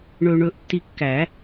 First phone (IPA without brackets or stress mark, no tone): ɳ